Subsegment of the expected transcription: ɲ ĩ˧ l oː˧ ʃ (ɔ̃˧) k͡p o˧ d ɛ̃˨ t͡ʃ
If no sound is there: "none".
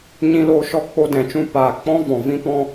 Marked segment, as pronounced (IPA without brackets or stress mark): ɔ˧